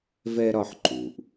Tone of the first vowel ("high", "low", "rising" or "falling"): high